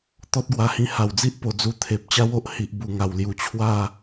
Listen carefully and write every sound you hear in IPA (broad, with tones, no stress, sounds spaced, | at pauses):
t̪ ɔ˦ t̚ ɡ w a˧ h ĩ˧ h a˨˩ w d͡z i˦ ʔ p o˧ d͡z u˧ t̪ʰ e˨ p̚ t͡ɕ a˦ w o˦ ʔ h i˨ ʔ b u˨˩ ŋ a˨˩ w l j u˨˩ t͡ɕʰ w a˥˧